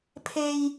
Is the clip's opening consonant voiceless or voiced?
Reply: voiceless